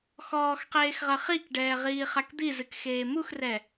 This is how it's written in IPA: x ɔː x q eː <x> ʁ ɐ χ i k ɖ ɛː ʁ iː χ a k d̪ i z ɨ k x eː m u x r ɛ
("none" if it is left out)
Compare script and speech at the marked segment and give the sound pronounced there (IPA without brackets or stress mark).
x